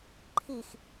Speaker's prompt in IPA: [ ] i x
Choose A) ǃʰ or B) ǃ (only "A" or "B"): A